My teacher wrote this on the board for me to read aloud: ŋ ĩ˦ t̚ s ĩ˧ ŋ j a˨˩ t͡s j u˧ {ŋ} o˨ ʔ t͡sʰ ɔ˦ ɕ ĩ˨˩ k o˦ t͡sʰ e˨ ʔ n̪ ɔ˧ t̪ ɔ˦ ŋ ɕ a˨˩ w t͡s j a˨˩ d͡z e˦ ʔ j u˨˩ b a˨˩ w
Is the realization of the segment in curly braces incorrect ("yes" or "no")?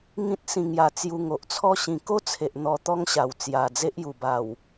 no